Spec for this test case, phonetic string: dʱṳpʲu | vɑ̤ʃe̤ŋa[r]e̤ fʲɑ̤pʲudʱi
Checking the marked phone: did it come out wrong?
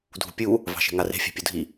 no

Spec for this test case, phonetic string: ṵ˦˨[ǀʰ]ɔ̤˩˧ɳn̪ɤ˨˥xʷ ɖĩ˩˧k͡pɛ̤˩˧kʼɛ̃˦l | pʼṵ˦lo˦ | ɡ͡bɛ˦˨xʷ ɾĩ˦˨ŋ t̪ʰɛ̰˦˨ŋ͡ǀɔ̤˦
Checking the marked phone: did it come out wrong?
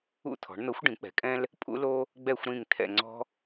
yes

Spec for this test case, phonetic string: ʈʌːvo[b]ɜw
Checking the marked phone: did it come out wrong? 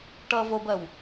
no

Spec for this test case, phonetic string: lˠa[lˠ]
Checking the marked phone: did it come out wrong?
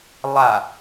yes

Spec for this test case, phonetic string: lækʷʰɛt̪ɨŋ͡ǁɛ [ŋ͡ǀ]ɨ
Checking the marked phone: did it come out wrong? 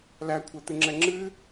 yes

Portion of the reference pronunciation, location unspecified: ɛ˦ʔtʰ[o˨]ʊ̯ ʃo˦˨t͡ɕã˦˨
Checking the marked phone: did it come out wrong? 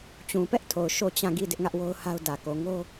no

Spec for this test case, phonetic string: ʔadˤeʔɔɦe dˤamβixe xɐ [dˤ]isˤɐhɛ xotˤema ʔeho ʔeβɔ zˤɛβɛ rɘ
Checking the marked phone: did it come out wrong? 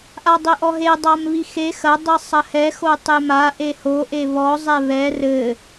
no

